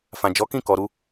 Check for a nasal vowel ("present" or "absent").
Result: present